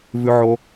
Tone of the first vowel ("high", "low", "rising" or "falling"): high